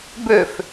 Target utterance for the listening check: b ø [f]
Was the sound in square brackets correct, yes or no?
yes